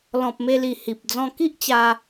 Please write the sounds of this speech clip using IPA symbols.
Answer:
l ɔ̃˨ p̚ m e˧ l i˨˩ h i˨ p̚ d͡z ɔ̃˧ k i˦ ʔ t͡ɕ a˧

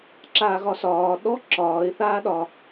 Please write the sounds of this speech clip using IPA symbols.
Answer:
ǁ aː ɣ ɒ s ɒː ɗ ɔ ǁ ɒː ɪ̯ θ aː ɗ ɒ

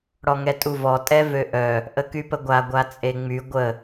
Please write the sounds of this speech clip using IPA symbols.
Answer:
ɽ ɔ ŋ ɛ tʼ u v ɔ tʼ ɛ v ø ʔ œ | ʔ ə k y p ə ɡʷ a ɡʷ a t͡sʼ e ŋ͡m y ɡʷ ə

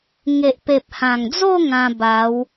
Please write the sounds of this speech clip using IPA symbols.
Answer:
ŋ e˨ ʔ p e˨ p̚ h ã˨˩ ŋ d͡z o˥˧ ŋ ã˧ b a˨˦ w

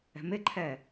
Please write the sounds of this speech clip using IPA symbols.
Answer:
ɛ̤ m ɪ ǃʰ ɛː

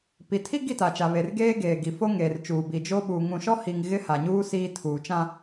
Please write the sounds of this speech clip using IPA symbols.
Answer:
p i˨ tʰ i˦ ɡ i˦˨ t a˨ t͡ʃ a˨ β e˨ r ɡ eː˦ ɡ eː˨ ɡ i˨ f o˦ ŋ eː˨ r t͡ʃ uː˨ b i˨ d͡ʒ o˦ ɓ u˨ ŋ ũ˨ ʃ ɔ˦ h i˨ ŋ ɣ ɪ˦ h a˨ ɲ uː˦ s iː˦ tʰ uː˨ t͡ʃ ã˦

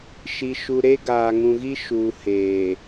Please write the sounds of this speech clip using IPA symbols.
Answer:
ʃ i˨ ʃ u˨ ɾ e˦ ɡ aː˨ ŋ ũ˨ ɣ i˦ ʃ uː˨ h eː˨

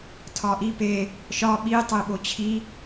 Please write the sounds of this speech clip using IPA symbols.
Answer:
tʰ ɒ ʔ i p e | ʃ ɒ ɓ i tˤ e ɓ o t͡ɕʰ i

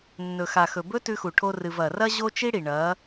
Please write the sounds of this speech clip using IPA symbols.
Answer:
nː ɵ˨ x a˨ x ɵ˨ b ɵ˦ t ʉ˧ x u˨ ʈʰ o˧ r ɨ˨ v ɐ˨ r ɐ˦ ʑ o˦ t͡ʃ i˦ ɽ i˨ ɳ ɐ˨˦

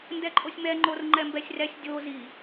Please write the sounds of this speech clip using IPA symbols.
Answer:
n d ɛ ǃʼ o sʲ m ɛ ŋ͡ǃ o r ŋ͡ǃ ɛ m b ɛ sʲ r ɛ sʲ dʲ o z i

